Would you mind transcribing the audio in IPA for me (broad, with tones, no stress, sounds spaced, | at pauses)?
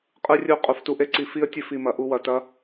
qʼ ɯ˦ rʲ u˦ qʼ u˨ f t u˧ ʔ e˦ ǀ i˧ f i˦ ə̯ tʲ ɘ˦ f i˧ m ɐ˧ ʔ u˦ w ɐ˨ t ɐ˦